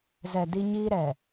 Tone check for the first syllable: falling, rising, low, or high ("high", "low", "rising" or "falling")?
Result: low